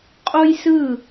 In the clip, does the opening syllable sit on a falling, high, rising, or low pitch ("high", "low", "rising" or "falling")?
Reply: high